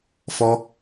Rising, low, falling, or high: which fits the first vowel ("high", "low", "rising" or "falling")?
high